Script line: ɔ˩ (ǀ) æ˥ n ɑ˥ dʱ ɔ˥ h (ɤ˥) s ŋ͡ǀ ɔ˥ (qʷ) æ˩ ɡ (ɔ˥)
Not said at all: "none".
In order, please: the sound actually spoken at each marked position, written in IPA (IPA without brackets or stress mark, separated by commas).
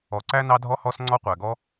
ǀ, ɔ˥, qʷ, ɔ˥